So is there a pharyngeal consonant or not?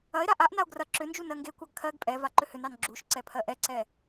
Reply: no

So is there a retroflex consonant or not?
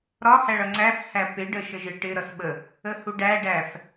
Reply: yes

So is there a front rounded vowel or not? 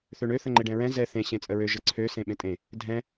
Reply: yes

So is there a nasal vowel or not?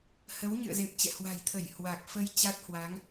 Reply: no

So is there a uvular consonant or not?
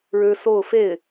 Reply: no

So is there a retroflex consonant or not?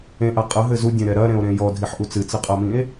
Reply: no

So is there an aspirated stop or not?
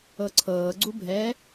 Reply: yes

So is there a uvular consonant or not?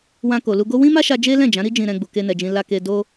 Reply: no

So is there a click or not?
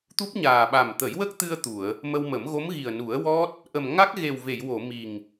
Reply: no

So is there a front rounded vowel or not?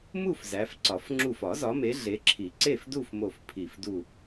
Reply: no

